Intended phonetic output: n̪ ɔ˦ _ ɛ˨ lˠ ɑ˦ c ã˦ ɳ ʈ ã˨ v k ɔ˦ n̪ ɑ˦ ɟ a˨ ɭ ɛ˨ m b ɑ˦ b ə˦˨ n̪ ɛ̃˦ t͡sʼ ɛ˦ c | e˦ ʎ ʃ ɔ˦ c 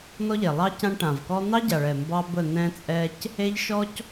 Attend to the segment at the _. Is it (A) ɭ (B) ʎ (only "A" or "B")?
B